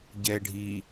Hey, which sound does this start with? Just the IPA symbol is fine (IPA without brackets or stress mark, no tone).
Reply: ɟ